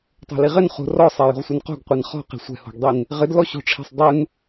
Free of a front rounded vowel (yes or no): yes